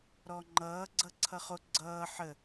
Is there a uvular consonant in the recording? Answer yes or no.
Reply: yes